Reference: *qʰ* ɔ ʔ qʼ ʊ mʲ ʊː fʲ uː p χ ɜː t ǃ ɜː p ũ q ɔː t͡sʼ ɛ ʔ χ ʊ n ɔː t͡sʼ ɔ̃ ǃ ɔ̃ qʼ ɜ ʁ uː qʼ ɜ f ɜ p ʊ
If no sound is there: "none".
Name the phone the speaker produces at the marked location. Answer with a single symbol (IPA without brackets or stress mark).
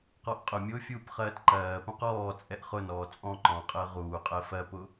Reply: q